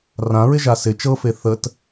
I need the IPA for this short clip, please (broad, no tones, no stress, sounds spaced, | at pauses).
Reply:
r ã ɹ ɪ ʒ a s ɪ t͡ʃ ɤ f e θ ə t